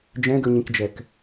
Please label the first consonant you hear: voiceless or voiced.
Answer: voiced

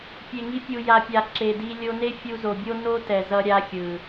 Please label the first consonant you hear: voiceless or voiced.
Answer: voiceless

